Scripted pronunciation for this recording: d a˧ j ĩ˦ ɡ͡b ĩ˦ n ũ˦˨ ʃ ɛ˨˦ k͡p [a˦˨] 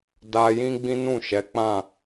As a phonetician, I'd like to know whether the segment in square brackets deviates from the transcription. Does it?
yes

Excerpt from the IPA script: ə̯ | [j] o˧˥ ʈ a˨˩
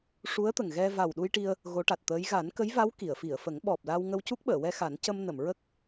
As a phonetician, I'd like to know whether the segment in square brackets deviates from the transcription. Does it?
yes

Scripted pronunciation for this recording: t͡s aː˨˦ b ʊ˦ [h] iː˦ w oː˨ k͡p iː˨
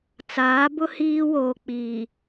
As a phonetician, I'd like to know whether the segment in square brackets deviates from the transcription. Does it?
no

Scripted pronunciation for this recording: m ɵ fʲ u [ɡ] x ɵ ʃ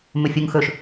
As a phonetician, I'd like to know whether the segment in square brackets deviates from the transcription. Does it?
yes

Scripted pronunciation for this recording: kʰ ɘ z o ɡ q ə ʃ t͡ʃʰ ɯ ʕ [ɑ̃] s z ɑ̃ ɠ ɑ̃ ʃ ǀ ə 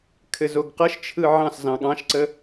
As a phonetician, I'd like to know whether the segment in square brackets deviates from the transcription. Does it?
no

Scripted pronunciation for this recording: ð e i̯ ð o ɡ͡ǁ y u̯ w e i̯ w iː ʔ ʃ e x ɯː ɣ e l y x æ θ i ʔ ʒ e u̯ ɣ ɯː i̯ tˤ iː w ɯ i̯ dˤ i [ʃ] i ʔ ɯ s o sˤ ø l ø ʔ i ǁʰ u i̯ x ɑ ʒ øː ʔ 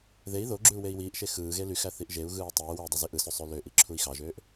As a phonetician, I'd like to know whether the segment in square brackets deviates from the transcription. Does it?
yes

